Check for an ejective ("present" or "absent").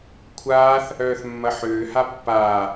absent